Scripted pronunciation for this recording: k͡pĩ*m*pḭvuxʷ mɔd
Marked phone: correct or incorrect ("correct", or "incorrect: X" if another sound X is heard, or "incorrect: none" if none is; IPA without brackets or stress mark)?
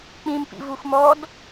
correct